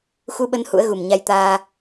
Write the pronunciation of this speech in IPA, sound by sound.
x u˧ ɓ ə˧ n h ṵ˧˥ ə̯ ɣ u˨˩ m ɲ a˧ j t̪ aː˧

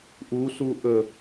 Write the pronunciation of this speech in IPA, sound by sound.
ʔ u s u ʔ ə

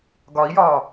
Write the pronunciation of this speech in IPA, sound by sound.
ɡ ɒ i̯ j ɒː

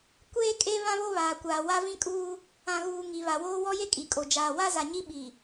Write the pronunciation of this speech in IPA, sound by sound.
kʷ eː˦ kʼ e˦ β ã˦ β o˦ β aː˨ kʷ aː˨ w a˦ v ĩ˦ kʼ uː˦ | ã˨ ɣ uː˨ ŋ i˨ β a˨ w oː˦ w ɔ˦ j e˦ kʼ i˨ kʼ o˨ d͡ʒ aː˨ w a˦ z a˨ ɲ i˦ ɓ i˨

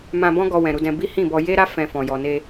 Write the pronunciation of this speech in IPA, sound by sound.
m ã˧ b ɔ̃˦ ɡ ɔ˧ w ɛ̃˨ ɾ u˧ d ɛ̃˧ b i˦ h ĩ˦˨ b ɔ˧ j e˦ ɾ a˦ f ɛ̃˧ f ɔ̃˨ j ɔ˨ n e˧

